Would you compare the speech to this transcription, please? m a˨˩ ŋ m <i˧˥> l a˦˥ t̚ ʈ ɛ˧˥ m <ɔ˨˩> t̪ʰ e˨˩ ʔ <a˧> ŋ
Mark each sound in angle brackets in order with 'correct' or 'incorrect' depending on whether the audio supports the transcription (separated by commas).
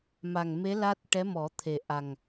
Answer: incorrect, incorrect, incorrect